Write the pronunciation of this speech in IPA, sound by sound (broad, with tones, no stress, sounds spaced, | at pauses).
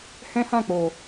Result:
h ɛ̃˦ h ã˦˨ k͡p o˨